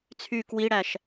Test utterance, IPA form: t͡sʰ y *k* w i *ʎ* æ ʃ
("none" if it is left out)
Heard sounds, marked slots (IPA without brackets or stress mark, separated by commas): k, ɽ